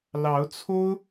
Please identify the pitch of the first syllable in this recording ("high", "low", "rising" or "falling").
rising